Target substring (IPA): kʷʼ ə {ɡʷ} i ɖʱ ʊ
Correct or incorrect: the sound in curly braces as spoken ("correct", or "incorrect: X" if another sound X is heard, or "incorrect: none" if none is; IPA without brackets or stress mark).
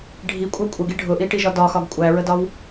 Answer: incorrect: ɡ